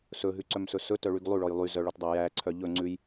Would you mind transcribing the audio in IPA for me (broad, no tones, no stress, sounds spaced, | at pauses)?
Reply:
s ɵ ɦ ʉ ǀ œ m s ɵ s ɵ t œ ɭ y ɡ lˠ ʉ ɭ ɔ j lˠ y z œ ɭ ɔ t dˤ æ j æ ǀʰ œ ʎ ɵ ŋ͡ǀ ʉ j